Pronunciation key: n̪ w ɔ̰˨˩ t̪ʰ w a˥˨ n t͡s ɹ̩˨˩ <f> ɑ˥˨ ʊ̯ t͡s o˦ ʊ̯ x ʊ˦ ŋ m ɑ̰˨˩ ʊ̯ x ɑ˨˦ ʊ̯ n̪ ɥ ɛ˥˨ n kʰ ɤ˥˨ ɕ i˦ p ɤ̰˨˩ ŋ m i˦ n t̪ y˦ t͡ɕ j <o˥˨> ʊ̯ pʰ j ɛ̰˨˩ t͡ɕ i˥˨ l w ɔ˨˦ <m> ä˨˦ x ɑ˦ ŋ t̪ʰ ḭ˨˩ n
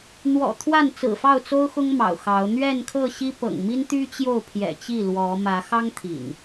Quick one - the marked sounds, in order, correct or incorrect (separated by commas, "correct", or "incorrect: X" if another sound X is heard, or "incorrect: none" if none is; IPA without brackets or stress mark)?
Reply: correct, correct, correct